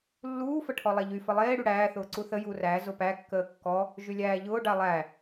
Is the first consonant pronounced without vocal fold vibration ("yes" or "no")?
no